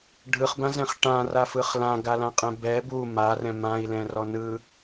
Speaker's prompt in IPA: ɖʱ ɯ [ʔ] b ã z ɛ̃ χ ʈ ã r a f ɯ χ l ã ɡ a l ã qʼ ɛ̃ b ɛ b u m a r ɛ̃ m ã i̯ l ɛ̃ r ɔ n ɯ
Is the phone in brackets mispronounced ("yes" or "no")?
yes